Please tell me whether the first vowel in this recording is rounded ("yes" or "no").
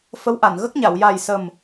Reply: no